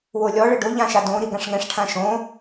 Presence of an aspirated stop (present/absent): present